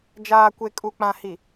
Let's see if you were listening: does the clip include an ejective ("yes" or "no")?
yes